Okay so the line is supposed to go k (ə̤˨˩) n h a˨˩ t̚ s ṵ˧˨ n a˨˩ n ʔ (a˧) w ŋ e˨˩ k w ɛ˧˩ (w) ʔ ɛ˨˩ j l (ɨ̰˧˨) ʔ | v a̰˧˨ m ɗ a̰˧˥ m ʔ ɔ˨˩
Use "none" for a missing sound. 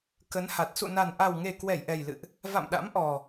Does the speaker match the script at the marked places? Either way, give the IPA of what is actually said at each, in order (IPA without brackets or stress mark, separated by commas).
ə˨˦, a˨˩, j, ɨ̰˧˨